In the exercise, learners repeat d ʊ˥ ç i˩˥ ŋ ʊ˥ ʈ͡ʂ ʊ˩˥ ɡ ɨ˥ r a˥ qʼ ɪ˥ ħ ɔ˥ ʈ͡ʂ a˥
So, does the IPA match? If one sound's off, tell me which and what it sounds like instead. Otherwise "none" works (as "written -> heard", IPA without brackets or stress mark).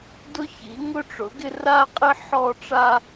ɨ˥ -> ɪ˥